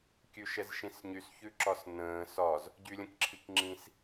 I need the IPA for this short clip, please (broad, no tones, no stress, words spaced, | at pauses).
kʲʉʃɛzʃĩsɲys çʉǁɒsnə̃ː sɒz | ɟylʲə̃kǁʰikŋ͡ǁĩs